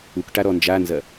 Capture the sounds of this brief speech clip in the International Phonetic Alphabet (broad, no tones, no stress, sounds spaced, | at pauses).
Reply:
u k ʈ a ɾ ɔ n d͡ʒ a n z ɐ